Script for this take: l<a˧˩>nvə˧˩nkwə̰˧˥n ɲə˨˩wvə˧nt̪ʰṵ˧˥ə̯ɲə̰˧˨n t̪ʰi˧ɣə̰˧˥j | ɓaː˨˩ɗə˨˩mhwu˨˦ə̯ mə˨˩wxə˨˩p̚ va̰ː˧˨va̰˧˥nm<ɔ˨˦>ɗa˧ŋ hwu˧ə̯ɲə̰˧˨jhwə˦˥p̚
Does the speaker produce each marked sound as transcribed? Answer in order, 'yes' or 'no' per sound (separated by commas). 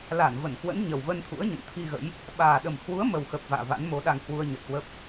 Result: yes, no